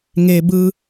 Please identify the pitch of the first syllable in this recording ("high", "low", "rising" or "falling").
high